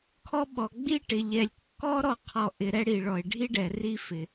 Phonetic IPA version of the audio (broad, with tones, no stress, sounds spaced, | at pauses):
kʰ ɔ˦ ɓ ɔ˩ ɡ͡b i˥ ʈ ɪ˩ ʎ ɛ˩ lʲ kː ɔ˥ ɾ ɔ˦ qʰ ɔ˨ ʔ ɪ˨ ɾ ɛ˥ ɽ i˩ ɭ ɔ˩ e̯ ɖʱ i˥ ɖ ɛ˩ r i˦ f ɪ˩